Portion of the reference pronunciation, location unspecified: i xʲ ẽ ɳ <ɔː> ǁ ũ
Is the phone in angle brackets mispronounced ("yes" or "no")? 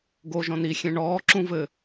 no